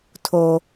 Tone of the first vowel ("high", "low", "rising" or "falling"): high